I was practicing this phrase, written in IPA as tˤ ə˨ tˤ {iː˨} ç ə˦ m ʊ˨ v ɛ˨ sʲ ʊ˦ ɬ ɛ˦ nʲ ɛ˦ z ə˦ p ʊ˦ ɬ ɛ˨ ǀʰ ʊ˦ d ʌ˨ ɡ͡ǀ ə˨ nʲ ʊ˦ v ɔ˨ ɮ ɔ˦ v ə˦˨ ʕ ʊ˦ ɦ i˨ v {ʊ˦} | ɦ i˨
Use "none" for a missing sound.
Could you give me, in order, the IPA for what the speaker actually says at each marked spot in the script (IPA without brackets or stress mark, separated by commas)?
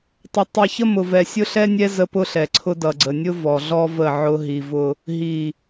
i˨, ʊ˦